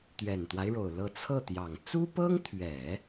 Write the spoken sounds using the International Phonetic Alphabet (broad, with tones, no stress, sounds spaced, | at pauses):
t̪ ɥ ɛ˨˩ n t̪ w a˦ ɪ̯ ɻ o˨˩ ʊ̯ l ɤ˧˥ t͡sʰ ɤ˥˩ t̪ j ɑ˨˩ ŋ t͡s u˥ p ɤ˥ ŋ t̪ʰ ɥ ɛ˨˩˦